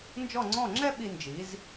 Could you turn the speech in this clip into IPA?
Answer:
n d͡ʒ ɔ˥˩ ŋ͡ǀ ɔ̃˥˩ ŋ͡ǁ ɛ˥ ɓ i˧ n d͡ʒ i˩˥ z

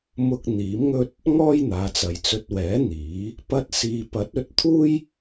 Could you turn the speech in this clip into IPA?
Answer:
m ʊ˧ k̚ n̪ iː˨˥ m ŋ ɵ˥ t̚ | ŋ ɔː˥ j n̪ aː˨˧ t͡s ɐ˨ j t͡s ɵ˧ t̚ w ɛː˨˥ n̪ iː˨˥ | p ɐ˧ t̚ s iː˨ p ɐ˨˥ t̚ ɵ˨˥ t̚ t̪ʰ uː˥ j

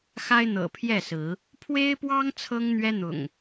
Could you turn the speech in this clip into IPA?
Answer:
x a˦ ɪ̯ n̪ ɤ̰˨˩ pʰ j ɛ˥˨ s ɹ̩˨˦ | pʰ w e˦ ɪ̯ p w ɑ˦ ŋ t͡sʰ ɤ˦ ŋ n̪ ɥ ɛ˦ n̪ ʊ̰˨˩ ŋ

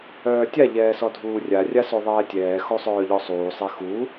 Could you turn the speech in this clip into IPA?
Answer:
œː tʲ a ʎ ɛː s ɔ dʱ uː rʲ a rʲ a s o ðˤ ɛː tʲ ɛː x o sˤ œː ʎ ɔ sˤ uː sˤ e x u

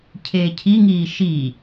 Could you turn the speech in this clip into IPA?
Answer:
cʰ eː cʰ i ŋ iː ʃ i

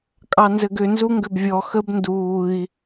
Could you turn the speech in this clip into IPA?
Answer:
kʼ ɑ n z ɘ ɡ ʏ n z u ŋ ɡ ʏ b vʲ ɔ x ə b n d uː i̯

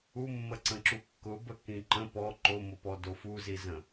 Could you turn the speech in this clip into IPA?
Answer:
u mː ə ǀ ə̃ ǁ u kː ʊ b ə k ĩ ǃ ə̃ p ɔ ǃ o m o p ɔ d o f u z i z ə̃

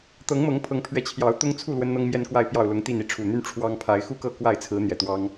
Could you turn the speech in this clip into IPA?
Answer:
t̪ ɤ˨˦ ŋ m ɤ˨˦ ŋ pʰ ɤ˨˦ ŋ pʰ ɥ ɛ˨˦ t͡ɕʰ j ɑ˨˦ ʊ̯ t̪ ʊ˦ ŋ t͡sʰ u˥˨ l w ə˦ n n̪ ɤ˦ ŋ m j ɛ˦ n k w a˥˨ ɪ̯ p j ɑ˥˨ ʊ̯ l ʊ˨˦ ŋ t̪ i˥˨ n i˨˦ ʈ͡ʂʰ u˨˩ n̪ y˦ n ʈ͡ʂʰ w ɑ˦ ŋ pʰ a˨˦ ɪ̯ x u˥˨ k ɤ˥˨ k w a˥˨ ɪ̯ t͡sʰ ɹ̩˨˦ n̪ j ɛ˨˩ t̪ w ɑ˦ ŋ

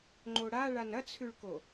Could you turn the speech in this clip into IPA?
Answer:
ŋ͡ǃ o ɽ a ɭ a n ɐ t͡sʰ ʉ ɭ k o

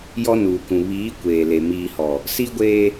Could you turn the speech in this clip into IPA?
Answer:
j ɔ˦ n uː˨ k ũ˨ β iː˨˦ kʷ eː˨ l e˨ m iː˨ h ɔ˨ | s i˦ ɡʷ eː˦

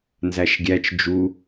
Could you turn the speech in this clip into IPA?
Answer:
n z æ ʃ ɡʲ æ t͡ʃ d͡ʒ u

